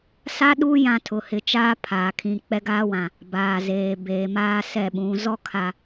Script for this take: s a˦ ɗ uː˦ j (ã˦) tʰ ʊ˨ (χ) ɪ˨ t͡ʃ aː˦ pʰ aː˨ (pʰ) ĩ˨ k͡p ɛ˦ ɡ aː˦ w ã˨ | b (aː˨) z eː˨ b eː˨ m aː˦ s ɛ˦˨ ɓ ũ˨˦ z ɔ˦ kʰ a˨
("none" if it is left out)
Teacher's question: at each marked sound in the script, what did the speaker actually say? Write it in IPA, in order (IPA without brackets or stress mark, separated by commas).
ã˦, h, kʰ, aː˨